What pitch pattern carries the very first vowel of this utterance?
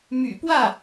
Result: low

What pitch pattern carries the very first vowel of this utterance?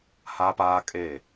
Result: high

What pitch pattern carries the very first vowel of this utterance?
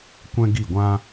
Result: high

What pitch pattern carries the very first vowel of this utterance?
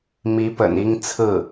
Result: rising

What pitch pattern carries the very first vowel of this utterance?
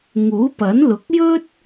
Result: rising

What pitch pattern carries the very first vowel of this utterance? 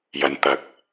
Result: low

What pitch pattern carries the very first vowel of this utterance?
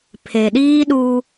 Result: low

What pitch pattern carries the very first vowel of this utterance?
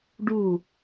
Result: falling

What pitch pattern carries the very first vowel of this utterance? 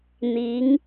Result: rising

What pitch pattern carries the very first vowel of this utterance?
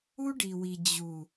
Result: high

